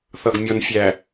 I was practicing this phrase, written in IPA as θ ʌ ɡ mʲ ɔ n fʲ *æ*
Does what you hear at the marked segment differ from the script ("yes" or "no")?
no